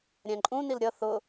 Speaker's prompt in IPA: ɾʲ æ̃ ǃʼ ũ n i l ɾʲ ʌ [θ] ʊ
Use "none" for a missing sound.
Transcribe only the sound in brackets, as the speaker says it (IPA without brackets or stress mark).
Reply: θ